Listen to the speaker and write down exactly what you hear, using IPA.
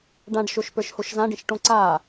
ɖ ã ɖ ʃ o ʃ p ə˞ ʃ h o ʃ z ã ɖ ĩ ʃ ʈ õ ǀ a

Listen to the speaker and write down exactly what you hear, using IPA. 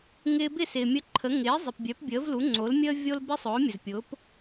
ŋ ɪː˧ b ɪ˥˩ s ɪː˩ mʲ ə˧ ǃʰ ə˩˥ ŋ ɪː˩˥ zˤ ɪ˩ p bʲ œ˩˥ p bʲ əː˩˥ v l u˩˥ ŋ͡ǀ o˩˥ l mʲ əː˥ vʲ o˥ l b ɪ˥ sˤ ʊː˩˥ mʲ ə˩ z pʲ ʊː˩˥ p

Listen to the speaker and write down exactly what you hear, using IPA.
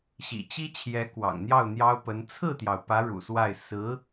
ɕ ḭ˨˩ t͡ɕ i˥ t͡ɕʰ j ɛ˧˥ k w ɑ̰˨˩ ŋ n̪ j ɑ˥˩ ʊ̯ n̪ j ɑ˥ ʊ̯ p ə˧˥ n t͡sʰ ɹ̩˥˩ t̪ j ɑ˩ ʊ̯ p ä˧˥ ɻ ṵ˨˩ s w a˥˩ ɪ̯ s ɹ̩˧˥

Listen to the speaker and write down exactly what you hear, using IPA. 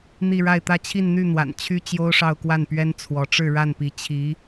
n̪ i˥˧ ɻ a˥˧ ɪ̯ t̪ ä˥˧ t͡ɕʰ i˥˧ n n̪ y˥˩ n̪ w a̰˨˩ n t͡ɕʰ y˥ t͡ɕ j o˥ ʊ̯ ʂ ɑ˥˧ ʊ̯ k w a˥˩ n p ɥ ɛ˥ n t͡sʰ w ɔ˧˥ ʈ͡ʂ ɻ̩˥˧ ɻ a˥˩ n p i˧˥ t͡ɕʰ i˧˥

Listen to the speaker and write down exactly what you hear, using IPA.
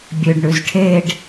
bʲ ø ɖ ɳ ʉ z ʈʰ e ɖ

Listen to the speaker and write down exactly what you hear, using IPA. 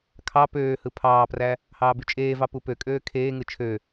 kʰ ɑ p øː h ɯ pʰ ɑː p r æ | h ɑː b y t͡ʃʼ eː v ɑ p u p ø kʼ øː kʰ eː ŋ ɯ t͡ʃʰ ø

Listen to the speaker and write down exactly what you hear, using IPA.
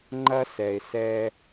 ŋ͡ǃ ɐ˦ s ɛ˨ ɪ̯ s ɛː˧

